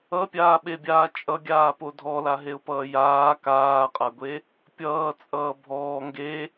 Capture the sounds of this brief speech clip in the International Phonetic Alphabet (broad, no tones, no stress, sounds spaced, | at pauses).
ʌ pʲ aː ɓ e bʲ aː t͡ʃʼ ʌ ɡʲ aː p o dʱ ɔ l a ɦ e ʊ̯ p ʌː j aː k aː qʼ a ɡʷ e | pʲ ʌː t͡sʼ ʌː bʱ ɔː ŋ ɡ e